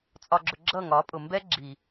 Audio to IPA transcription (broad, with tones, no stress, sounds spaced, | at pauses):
t͡sʼ ɒ˨ ɡ͡ǁ ʊ˨ ɡ͡ǁ ʌ˦˨ ŋ ɒ˨˦ pʼ ʊ˨ m b ɛ˦ ɡ͡ǁ i˨